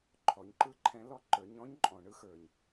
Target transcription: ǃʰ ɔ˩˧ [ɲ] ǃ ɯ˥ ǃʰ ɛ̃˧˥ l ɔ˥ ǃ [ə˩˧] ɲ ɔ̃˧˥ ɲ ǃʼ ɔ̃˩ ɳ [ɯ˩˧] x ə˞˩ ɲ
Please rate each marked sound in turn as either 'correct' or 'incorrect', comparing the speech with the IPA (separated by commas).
correct, incorrect, incorrect